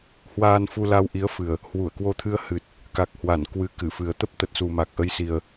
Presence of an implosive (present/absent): absent